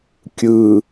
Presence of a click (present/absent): absent